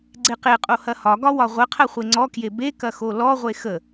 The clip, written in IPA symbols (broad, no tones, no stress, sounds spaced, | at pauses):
ɡ͡ǀ e q e qʼ o h ɐ h ɒ ɡ ɒ w ɒ ʁʷ ə qʰ ɐ χʷ e ŋ͡ǀ ɔ k j e b e k ɐ x o l ɔ ʁʷ e x ə